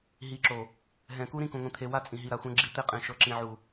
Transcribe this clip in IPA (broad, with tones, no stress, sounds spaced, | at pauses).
ɦ i˨ ǁ o˨ | ɦ ɛ̃˨ k u˦ ɾ ĩ˦ k ũ˨ ŋʷ ĩ˨ t̪ʰ e˨ w a˦ t͡sʼ ĩ˨ ɦ i˨ ɾ a˨ xʷ ɛ̃˦ ɡ͡ǁ i˦ t̪ e˦ qʼ ẽ˨ ʃ ɤ˨ ǁ ĩ˨ ʕ u˨